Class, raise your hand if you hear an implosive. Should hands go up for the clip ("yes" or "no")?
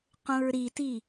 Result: no